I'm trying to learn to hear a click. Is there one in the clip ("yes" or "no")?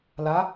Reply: no